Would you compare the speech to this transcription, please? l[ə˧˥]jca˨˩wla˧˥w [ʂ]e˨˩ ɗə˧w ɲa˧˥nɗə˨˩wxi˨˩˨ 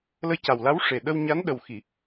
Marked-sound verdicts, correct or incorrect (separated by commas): correct, correct